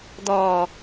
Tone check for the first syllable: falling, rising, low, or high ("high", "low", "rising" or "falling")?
low